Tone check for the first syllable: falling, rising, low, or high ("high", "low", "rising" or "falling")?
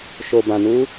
low